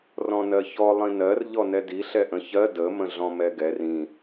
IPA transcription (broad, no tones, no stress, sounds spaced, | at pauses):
r ɔ̃ n ɜ ç ɔ lˠ ĩ n ɜ r ʎ ɔ n ɛ d i ɬ ɛ ʔ ə̃ ç ɜ d ə m ə̃ ɮ ɔ̃ m ɛ ɡ ɛ r ĩ